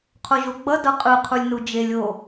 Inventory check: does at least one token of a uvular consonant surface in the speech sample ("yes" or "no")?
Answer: yes